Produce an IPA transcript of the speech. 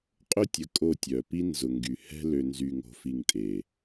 qʼ ʊ˦ tʲ ə˨ kʼ o˦˨ tʲ œ˨ p i˦ n z ʊ˨ ŋ ɡ y˨ h ɛ̤˦ l ø˨ n z y˨ ŋ o̤˨ f i˨ ŋ tʼ e˨

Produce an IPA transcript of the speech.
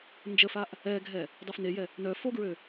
n d͡ʒ ə f a ʔ | ɛ ɡʱ ɛ | dˤ o f n e j ɛ | n œ f o ɡ ɹ ø

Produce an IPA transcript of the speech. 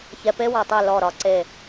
ç ɛ˧ p e˦ w ɒ˨ tˤ e˦˨ l ɔ˦˨ ɾ ɒ˧ ǀ e˦˨

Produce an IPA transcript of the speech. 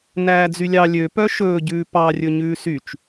n æː d͡z y lʲ ɑ lʲ ø p œ ʃ ɵː ɟ ʉː p ɑ rʲ ɵ ɲ ʉː s y t͡ʃ

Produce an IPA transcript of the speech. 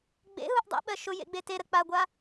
ɡ͡b ḛ ɦ u ʔ dˤ ɛ̰ ɓ ɜ ʃ ʊ j ḛ ɡ͡b e t e ɾ ə k͡p a ɡʷ a

